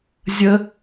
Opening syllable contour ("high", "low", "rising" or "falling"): high